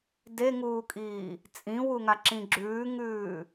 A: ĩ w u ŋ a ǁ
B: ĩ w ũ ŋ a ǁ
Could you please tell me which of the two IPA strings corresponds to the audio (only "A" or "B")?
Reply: A